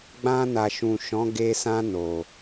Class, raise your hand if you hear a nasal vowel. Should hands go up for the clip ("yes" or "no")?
yes